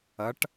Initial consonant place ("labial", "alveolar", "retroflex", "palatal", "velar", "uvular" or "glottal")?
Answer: retroflex